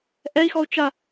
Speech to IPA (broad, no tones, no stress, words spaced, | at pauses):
ʔɛi̯xɔu̯ t͡ʃa